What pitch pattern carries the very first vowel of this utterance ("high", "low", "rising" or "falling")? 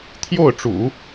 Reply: falling